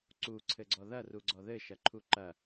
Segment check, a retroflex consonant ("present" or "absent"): absent